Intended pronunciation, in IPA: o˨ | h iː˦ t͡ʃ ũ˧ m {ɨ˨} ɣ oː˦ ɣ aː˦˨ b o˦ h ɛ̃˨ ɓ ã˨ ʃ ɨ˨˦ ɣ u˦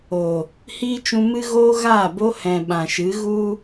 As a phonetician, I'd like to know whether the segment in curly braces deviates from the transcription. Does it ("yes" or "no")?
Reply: yes